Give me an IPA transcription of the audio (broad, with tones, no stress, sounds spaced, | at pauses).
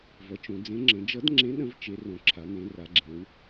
v ʌ˩˧ t͡ʃ õ˩˧ d͡z ẽ˨˥ ŋ͡ǁ ə̃˩˧ d͡ʒ ʌ˨˥ d ŋ͡ǁ ẽ˨˥ ɗ ə̃˨˥ v t͡ʃ e˩˧ r õ˩˧ ǁʰ a˩˧ n ẽ˩˧ r a˩˧ ɡ͡ǁ ẽ˩˧ w